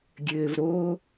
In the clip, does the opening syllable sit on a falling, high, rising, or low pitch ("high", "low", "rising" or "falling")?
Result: low